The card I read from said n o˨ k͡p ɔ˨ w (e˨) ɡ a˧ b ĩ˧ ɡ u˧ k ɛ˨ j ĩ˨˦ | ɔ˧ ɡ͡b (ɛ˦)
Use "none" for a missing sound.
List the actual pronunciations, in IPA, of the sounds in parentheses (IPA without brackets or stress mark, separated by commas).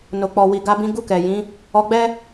i˨, ɛ˦